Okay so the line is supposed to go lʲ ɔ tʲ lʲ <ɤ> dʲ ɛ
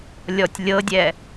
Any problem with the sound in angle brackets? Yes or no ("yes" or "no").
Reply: no